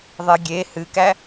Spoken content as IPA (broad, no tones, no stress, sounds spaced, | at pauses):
ðˤ e ɡʲ e h ɨ k æ